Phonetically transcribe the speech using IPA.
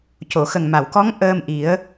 c o˨˩˨ x ə˨˩ ŋ m a˨˩˨ w k ɔ˧˥ ŋ ʔ əː˧ m ʔ i˨˩˦ ə̯

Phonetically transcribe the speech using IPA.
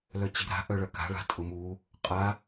l œ t͡ɕ i̤ ɾ a̤ ʔ œ ɭ ɐ k a̤ ɭ a̤ tʼ ʊ m u | qʼ a

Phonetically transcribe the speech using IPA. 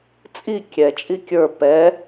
t͡sʼ i kʲ ɛ t͡ʃʼ i kʲ ə˞ p ɛ

